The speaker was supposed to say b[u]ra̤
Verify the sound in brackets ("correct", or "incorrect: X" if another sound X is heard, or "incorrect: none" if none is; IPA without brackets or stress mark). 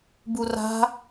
correct